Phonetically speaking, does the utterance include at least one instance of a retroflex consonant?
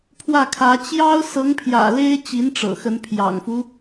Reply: yes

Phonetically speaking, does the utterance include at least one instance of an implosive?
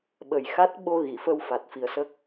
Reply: yes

